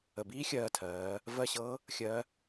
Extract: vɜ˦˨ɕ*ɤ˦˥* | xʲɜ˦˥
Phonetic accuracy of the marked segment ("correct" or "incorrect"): correct